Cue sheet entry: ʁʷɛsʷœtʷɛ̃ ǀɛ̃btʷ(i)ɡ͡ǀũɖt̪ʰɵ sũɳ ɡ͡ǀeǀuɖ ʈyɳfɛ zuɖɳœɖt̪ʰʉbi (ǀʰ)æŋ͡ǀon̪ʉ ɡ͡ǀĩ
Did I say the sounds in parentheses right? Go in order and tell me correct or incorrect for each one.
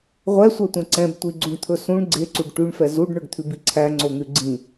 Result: correct, correct

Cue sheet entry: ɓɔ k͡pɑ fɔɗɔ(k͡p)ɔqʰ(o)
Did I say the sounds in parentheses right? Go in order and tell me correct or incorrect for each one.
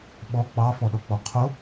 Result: correct, correct

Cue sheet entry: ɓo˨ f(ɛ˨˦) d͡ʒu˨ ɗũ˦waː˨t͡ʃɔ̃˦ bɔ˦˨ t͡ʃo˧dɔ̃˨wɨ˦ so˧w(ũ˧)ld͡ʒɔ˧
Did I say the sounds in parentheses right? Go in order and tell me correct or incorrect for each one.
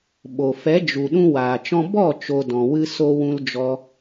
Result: correct, correct

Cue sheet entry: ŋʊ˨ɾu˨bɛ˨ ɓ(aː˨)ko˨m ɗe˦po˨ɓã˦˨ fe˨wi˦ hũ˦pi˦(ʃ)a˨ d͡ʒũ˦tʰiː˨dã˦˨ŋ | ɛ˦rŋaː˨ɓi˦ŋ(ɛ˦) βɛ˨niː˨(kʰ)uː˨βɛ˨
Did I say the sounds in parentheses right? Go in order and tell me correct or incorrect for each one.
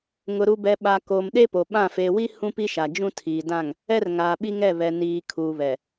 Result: incorrect, correct, incorrect, correct

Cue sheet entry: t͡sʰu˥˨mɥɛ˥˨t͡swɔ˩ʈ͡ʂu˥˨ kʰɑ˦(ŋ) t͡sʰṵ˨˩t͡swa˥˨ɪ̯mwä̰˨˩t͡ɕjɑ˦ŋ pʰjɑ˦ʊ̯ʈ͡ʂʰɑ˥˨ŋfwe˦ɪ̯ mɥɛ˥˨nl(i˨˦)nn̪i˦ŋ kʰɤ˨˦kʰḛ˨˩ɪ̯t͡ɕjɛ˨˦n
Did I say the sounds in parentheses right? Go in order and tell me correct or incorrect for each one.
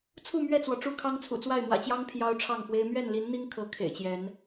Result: correct, correct

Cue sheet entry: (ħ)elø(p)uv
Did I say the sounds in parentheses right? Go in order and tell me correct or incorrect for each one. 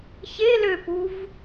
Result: incorrect, correct

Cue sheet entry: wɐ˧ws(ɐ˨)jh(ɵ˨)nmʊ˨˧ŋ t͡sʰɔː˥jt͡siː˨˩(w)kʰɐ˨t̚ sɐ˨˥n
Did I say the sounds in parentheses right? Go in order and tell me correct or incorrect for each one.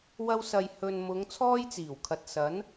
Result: correct, correct, correct

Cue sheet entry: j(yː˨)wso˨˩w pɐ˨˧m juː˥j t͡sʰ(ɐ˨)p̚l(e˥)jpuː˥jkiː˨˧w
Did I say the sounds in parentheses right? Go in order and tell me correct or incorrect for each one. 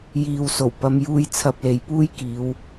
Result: incorrect, incorrect, incorrect

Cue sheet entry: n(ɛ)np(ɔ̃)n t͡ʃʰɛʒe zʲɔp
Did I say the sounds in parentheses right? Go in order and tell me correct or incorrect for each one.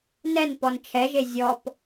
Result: correct, incorrect

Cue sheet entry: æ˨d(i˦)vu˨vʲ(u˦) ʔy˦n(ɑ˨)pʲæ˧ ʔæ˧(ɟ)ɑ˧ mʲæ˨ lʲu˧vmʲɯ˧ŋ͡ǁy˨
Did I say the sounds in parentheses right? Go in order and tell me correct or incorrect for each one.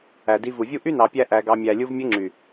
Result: incorrect, correct, correct, incorrect

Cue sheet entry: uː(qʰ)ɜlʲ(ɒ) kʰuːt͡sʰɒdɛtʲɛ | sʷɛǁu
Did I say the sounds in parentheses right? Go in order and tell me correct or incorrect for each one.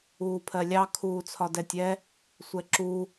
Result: incorrect, incorrect

